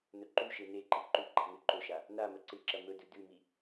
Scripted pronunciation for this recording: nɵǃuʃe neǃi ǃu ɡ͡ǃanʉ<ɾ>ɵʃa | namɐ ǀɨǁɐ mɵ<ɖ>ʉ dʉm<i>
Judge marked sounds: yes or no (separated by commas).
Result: no, no, yes